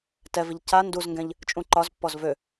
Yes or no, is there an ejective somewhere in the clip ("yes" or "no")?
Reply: yes